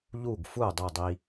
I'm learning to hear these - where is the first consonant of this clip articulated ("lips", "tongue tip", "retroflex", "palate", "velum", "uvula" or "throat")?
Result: palate